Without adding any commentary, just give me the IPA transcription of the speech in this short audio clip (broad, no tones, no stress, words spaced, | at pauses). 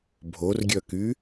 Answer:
bʱorɡʲœky